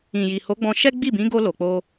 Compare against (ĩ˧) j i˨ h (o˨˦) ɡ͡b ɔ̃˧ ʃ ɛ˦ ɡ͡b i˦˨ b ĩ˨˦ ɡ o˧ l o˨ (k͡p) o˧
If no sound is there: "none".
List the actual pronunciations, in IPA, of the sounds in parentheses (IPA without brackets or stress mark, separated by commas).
ĩ˨, o˨˦, k͡p